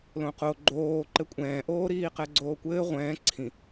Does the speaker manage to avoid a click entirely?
no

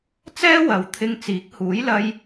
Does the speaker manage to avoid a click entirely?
yes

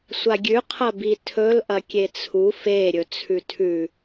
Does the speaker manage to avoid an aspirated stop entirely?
no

